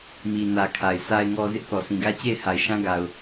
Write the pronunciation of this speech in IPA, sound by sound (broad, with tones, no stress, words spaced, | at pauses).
mi˨nä˨ kʰa˨ɪ̯ sa˨ɪ̯ŋɔ˨ zɪ˦ʔθɔ˨sĩ˨ɡä˦ t͡ɕe˦˨ɪ̯ ha˨ɪ̯ʃã˦ɡa˨ʊ̯